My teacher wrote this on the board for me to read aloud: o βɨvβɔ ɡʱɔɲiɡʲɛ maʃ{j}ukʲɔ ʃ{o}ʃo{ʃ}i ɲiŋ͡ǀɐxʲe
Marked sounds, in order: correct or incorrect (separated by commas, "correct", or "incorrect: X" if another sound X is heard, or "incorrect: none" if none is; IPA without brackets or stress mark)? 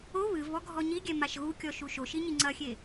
incorrect: ɣ, incorrect: u, correct